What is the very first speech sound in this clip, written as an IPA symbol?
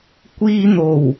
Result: kʷ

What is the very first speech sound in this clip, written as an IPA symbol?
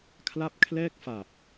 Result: kʰ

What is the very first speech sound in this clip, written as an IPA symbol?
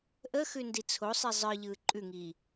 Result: ʔ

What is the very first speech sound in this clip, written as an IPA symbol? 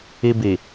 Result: i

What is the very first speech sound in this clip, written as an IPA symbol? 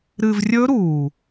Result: ɾ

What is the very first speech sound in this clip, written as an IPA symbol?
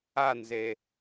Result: a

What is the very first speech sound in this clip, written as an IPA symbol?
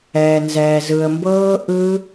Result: ɛː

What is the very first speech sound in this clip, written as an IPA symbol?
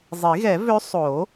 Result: zˤ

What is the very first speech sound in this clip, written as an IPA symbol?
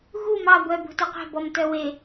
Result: ɣ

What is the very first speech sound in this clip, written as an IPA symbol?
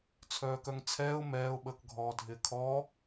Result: t͡sʰ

